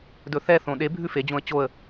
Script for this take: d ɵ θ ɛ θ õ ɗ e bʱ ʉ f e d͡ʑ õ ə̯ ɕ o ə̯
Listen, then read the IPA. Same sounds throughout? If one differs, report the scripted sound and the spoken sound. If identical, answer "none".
ɕ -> t͡ɕ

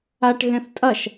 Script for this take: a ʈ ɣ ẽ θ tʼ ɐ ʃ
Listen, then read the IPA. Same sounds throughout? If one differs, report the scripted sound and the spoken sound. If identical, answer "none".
none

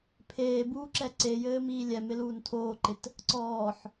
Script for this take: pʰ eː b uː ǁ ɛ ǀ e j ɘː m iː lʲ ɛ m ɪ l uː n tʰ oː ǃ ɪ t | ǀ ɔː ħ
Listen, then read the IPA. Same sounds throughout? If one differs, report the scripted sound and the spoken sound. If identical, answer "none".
none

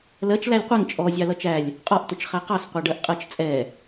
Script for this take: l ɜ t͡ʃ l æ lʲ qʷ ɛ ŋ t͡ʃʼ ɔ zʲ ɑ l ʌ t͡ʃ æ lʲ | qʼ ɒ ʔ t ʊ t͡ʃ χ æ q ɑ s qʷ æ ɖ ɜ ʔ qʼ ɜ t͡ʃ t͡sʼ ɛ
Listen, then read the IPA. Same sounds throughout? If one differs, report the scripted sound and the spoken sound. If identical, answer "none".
none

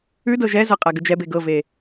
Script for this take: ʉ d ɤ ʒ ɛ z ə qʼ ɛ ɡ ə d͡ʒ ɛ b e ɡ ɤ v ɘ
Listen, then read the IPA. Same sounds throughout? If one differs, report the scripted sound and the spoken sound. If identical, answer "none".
ɘ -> e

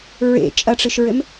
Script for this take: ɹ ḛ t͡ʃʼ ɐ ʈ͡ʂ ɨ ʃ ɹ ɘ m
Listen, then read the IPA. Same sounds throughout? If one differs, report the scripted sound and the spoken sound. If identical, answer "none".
none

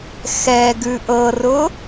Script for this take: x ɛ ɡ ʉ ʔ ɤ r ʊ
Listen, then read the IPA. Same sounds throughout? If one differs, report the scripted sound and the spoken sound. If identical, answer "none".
none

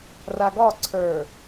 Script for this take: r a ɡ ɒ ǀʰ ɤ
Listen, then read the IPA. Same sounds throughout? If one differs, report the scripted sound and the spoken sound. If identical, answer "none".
ɤ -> ə˞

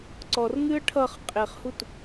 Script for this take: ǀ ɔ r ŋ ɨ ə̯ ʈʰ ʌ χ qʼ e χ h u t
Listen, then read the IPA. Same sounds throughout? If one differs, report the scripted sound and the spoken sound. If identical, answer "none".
none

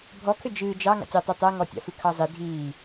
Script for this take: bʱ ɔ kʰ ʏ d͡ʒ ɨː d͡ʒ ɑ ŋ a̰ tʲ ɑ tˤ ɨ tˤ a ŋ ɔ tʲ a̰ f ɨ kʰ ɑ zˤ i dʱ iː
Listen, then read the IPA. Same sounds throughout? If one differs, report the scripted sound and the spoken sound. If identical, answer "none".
none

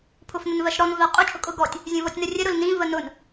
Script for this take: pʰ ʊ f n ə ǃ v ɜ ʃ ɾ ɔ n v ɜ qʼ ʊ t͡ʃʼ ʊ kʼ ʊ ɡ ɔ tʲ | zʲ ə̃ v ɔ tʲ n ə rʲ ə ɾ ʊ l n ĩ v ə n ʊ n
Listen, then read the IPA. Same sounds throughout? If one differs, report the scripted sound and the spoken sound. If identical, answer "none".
ǃ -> n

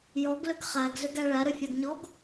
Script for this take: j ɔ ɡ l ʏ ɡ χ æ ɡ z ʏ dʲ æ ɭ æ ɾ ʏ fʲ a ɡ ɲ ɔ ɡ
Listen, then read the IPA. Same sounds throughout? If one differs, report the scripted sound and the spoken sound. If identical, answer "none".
dʲ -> ɡ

